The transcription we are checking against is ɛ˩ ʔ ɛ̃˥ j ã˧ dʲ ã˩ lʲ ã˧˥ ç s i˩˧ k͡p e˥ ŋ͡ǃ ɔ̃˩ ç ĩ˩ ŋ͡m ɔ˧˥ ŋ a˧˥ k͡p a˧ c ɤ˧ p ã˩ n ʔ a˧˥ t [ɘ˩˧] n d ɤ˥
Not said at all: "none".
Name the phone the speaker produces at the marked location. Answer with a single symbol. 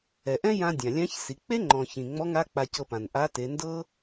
e˩˧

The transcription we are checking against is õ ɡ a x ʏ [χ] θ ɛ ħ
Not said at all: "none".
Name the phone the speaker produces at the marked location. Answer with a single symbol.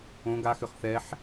χ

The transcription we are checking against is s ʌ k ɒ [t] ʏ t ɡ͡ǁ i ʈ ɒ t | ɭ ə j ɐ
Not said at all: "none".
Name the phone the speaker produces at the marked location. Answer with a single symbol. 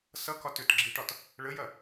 t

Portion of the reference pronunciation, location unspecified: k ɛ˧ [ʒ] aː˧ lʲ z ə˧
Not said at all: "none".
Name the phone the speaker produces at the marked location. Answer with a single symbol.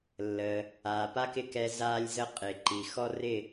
z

